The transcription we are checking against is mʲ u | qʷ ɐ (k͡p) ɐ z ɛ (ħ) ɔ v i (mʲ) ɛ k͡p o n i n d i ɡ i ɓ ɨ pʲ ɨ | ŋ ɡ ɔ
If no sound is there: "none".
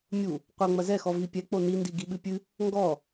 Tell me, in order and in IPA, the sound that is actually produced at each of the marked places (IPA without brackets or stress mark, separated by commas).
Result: ŋ͡m, x, pʲ